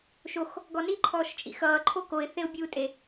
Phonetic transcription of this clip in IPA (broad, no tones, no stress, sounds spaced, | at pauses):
ʃ o x | ɡ ɔ n i ǃʰ ɔː ʃ t͡ʃʼ ḭ x ʌː ǃʰ o k o ɪ̯ θ e ʊ̯ bʲ uː tʼ e